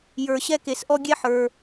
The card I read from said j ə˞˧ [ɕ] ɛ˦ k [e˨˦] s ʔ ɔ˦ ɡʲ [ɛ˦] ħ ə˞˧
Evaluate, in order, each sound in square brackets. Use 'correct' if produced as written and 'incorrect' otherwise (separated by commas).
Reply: correct, incorrect, correct